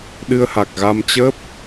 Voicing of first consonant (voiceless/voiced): voiced